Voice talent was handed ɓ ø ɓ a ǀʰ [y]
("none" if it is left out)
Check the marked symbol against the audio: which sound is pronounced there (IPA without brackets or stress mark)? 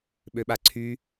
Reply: y